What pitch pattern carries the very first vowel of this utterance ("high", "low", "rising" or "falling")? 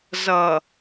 low